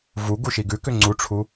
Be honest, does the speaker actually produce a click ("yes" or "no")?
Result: yes